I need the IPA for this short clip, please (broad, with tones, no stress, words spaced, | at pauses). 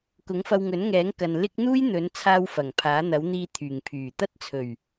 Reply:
kʊ˨˥ŋfɐ˧w ŋɵ˨˥nŋɛː˨˥ŋkɐ˨n lɪ˥k̚ n̪uː˥jn̪ɵ˨˥nt͡sʰaː˧w fɐ˨˩ŋpʰaː˨˥n̪ɐ˨˥w n̪iː˧ t̪ʰyː˨˩ŋpʰyː˨˩t̪ɐ˥t̚ t͡sʰɵ˨˩ɥ